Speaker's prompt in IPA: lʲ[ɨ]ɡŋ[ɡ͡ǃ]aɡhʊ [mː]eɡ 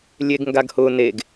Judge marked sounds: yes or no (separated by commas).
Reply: no, no, no